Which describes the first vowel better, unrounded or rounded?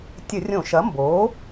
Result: unrounded